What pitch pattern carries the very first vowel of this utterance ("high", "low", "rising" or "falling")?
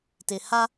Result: low